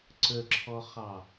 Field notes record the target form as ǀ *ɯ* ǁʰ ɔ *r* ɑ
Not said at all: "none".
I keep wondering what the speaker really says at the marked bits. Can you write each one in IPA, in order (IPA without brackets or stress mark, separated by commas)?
ə, χ